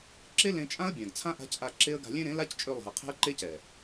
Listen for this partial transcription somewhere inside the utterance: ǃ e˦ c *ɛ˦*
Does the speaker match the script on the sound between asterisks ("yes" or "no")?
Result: no